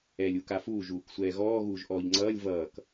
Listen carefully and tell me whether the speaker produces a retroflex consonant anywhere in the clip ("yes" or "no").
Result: no